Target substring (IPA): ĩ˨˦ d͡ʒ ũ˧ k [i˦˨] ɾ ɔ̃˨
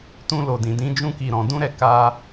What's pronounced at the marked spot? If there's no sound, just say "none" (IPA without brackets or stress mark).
i˨